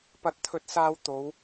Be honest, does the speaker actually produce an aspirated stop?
yes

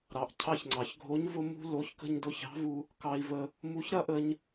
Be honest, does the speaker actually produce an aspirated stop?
yes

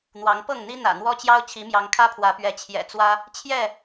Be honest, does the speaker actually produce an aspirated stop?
yes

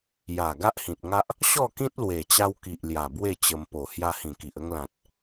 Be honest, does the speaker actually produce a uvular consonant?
no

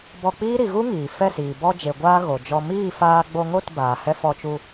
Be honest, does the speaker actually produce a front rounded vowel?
no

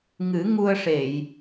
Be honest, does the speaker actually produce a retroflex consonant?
yes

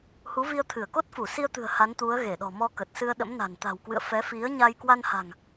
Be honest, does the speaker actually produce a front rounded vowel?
no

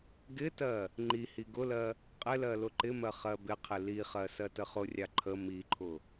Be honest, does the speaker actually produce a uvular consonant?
yes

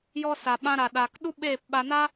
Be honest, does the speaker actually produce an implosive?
yes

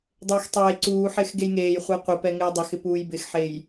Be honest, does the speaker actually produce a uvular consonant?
yes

